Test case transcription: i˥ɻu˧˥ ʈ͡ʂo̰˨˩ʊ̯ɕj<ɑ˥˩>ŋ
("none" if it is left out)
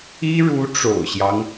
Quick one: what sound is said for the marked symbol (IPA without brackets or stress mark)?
ɑ˦